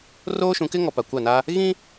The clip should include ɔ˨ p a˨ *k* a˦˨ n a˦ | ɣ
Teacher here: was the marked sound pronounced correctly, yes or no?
no